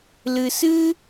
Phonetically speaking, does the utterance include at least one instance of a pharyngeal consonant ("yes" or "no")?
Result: no